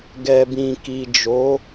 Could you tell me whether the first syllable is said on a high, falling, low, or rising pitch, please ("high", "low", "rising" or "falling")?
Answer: low